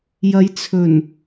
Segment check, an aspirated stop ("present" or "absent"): present